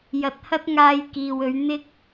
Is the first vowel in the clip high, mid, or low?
low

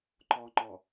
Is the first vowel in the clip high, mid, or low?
mid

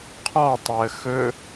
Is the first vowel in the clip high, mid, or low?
mid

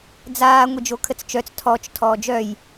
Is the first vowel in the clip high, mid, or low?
low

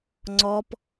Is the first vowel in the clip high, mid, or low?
mid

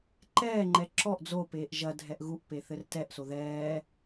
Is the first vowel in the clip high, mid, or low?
mid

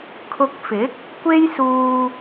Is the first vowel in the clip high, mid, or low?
high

